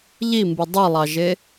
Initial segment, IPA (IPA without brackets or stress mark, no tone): ʎ